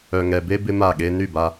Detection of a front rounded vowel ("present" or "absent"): present